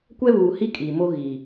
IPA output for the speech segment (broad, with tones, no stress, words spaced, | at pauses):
kʷɛ˦βuː˨hi˦ kʼi˨ mo˦ɣiː˨